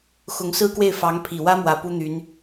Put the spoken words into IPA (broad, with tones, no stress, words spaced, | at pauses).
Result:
xʊ˧˥ŋsɹ̩˥kwe˥˩ɪ̯ fɑ˧˥ŋpʰi˨˩wä˥mwä˨˩ pu˥n̪y˧˥n